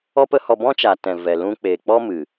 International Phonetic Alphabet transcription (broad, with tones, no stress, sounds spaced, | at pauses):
ɔ˦ p ə˦ h ɔ˧ b ɔ̃˦ t͡ʃ a˨ t ɛ̃˨ v ɛ˨ l ũ˧ k͡p eː˨ k͡p ɔ˦ m ɨ˨